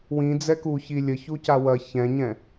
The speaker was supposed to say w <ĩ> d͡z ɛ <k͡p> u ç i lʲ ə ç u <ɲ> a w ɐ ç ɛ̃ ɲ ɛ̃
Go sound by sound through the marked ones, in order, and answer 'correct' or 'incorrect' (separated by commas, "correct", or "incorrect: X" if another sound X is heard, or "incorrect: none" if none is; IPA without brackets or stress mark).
correct, incorrect: k, incorrect: c